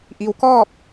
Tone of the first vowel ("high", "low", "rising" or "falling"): low